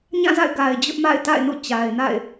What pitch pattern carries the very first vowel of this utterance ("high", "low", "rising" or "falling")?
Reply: falling